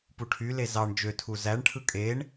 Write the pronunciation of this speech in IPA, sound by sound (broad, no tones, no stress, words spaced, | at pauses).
puʈʰyle zɑɳ d͡ʒøtʰu zæɳʈʰɯ kʼeɳ